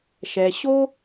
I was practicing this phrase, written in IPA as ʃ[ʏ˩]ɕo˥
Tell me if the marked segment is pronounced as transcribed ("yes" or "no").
no